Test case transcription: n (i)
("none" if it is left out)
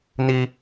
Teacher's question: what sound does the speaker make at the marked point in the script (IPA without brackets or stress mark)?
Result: i